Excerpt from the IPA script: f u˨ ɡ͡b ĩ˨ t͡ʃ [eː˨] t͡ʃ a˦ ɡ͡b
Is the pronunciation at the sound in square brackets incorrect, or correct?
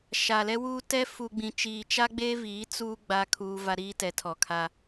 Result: incorrect